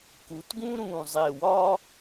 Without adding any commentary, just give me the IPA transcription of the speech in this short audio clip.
k u˩˧ t ɡ ũ˥ ɾ ũ˧˩ zˤ e˧˩ w ɒ˥

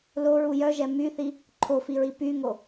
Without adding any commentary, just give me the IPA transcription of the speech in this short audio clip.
l o ɹ u j œ ʒ ɛ m y θ i | ǃʰ o f i ɹ i p y ŋ o

